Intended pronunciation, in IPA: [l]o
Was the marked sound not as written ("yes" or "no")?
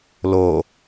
no